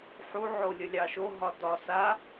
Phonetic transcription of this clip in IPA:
ħ u ʕ o lʲ ə lʲ ɑ ʃ o ɦ ɒ d ɒ s a

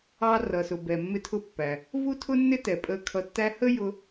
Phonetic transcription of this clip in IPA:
ɑ˧ r ʌ˩ s ʊ˩ b ɛ˩ mː ɪ˧ tʰ ʊ˧ pː æ˩ | v u˥ tʰ ʊ˥ nː ɪ˥ t ɛ˩ pʼ ə˧ kʰ ʌ˧ tː æ˥ h ə˥ j ʊ˥

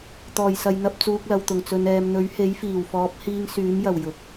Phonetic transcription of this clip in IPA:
t̪ ɔː˨˩ j s ɐ˨ j n̪ ɐ˧ p̚ t͡s uː˧ k̚ l ɐ˨ w t̪ ʊ˨˩ ŋ t͡s ɵ˨ n ɛː˨ m n̪ ɵ˨˥ ɥ h e˨˥ j f iː˨˩ w f ɔː˨˥ p̚ h iː˧ ŋ s yː˨˥ m j ɐ˨˩ w j ʊ˨ k̚

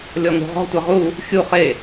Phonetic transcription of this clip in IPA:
lʲ ɔ ŋ ṳ ʁ ɔ̤ tʷ ɛ ʁ u | xʲ u χ e

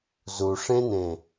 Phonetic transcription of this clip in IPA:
z u ʂ ẽ n ẽ

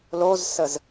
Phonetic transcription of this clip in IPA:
l o z s ə z

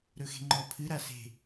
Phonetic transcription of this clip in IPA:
ɾ ɵ x e̤ ŋ͡ǃ ɔ pʰ ɨ ɾ a s e̤

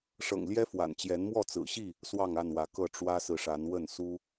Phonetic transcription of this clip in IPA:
ʂ ɤ̰˨˩ ŋ l j ɛ˦ f w a̰˨˩ n t͡ɕ j ɛ˨˦ n m w ɔ˥˨ t͡s ɹ̩˨˩ ɕ i˥˨ | s w ɑ˥˨ ŋ a˥˨ n w ä˨˦ k ɤ˥˨ ʈ͡ʂ w ä˦ s ɹ̩˨ ʂ a˨˦ n w ə˥˨ n s u˦

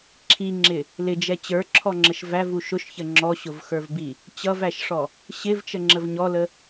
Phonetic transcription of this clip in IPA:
ǁʰ i ŋ͡ǁ ɪ | l ɪ d͡ʒ ɛ t͡ɕ ə˞ ǁʰ ɔ ŋ͡ǁ ə ʃ v æ v u ʃ ʊ ʃ ç ə ŋ͡ǁ ɔ ɕ ʊ v x ə˞ v b i | t͡ɕ ʌ v æ ʃ ʂ ɔ | ɕ ɪ v t͡ʃ ə ŋ͡ǁ ə v ɲ ɔ l ə

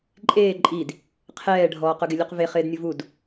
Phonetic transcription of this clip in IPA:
ǃʼ eː ǃʼ i d | qʰ ɛː ɖʱ ɔː q ʊ ɡ ɪ lʲ u q v e χ ɪː d nʲ ʊ v u d

